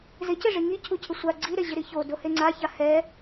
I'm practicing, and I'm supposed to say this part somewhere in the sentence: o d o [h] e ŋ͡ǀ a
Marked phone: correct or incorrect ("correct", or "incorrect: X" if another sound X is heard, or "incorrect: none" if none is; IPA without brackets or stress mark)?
correct